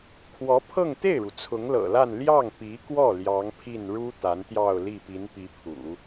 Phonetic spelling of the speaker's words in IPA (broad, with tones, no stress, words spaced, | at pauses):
kʰwɔ˧˥pʰɤ˥˧ŋt̪e˥˩ɪ̯ɻu˩ t͡sʰʊ˧˥ŋlɤ̰˨˩la˥˧n ljɑ˥˩ŋpi˧˥kwɔ˥˩ ljɑ˧˥ŋpʰi˥˩n ɻu˥ t̪a˧˥nt̪jɑ˥˧ʊ̯ li˥˩pi˧˥npi˧˥pʰṵ˨˩˦